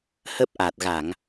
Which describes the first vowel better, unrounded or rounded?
unrounded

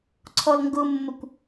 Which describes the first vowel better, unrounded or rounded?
rounded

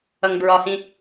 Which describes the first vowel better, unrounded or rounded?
unrounded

